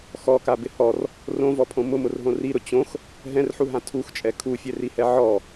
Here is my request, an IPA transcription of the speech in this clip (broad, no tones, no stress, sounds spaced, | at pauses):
x ɔ k a b ɪ h ɔ r | r õ v ɔ pʰ õ m ʊ m ʊ r ɦ õ r i ɾ ʊ t͡ɕ õ x | ɦ ɛ̃ r ħ u ɦ ã tʰ u x t͡ʃʼ ɛ kʰ u fʲ ɛ r i h ɛ ʕ ɔ